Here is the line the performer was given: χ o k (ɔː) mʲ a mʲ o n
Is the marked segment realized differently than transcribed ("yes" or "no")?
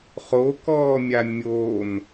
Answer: no